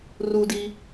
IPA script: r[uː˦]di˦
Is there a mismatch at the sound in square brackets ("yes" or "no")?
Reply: no